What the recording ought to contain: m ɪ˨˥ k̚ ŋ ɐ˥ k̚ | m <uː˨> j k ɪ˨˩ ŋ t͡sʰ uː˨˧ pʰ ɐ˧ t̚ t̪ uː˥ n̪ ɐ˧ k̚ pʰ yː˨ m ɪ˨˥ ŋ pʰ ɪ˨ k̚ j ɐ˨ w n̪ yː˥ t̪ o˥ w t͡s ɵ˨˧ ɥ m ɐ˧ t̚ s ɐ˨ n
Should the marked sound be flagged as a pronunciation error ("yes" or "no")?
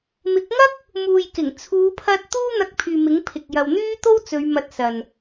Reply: no